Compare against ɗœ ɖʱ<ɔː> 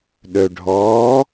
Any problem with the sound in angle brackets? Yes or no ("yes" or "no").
no